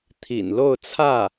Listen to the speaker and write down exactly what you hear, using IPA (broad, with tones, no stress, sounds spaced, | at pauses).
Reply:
t̪ʰ ḭ˨˩ n l o˥˧ ʊ̯ t͡sʰ ä˥˩